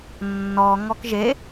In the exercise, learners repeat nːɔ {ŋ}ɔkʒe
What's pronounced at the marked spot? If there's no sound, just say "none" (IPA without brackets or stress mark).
ŋ